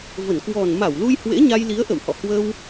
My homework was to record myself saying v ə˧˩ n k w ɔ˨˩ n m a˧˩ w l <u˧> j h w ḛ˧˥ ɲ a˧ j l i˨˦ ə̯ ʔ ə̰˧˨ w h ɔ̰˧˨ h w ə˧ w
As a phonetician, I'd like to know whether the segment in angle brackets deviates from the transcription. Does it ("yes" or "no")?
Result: no